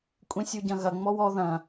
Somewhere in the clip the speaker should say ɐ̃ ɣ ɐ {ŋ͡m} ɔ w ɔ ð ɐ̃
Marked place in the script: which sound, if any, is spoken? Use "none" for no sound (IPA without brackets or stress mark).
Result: ŋ͡m